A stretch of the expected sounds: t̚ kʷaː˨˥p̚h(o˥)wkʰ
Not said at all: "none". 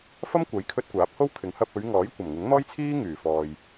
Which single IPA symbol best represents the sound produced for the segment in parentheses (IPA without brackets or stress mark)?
o˥